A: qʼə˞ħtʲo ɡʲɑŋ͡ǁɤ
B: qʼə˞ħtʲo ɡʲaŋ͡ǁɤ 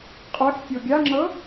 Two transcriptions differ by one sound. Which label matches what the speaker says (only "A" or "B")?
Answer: B